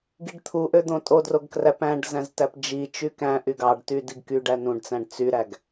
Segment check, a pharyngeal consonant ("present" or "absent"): absent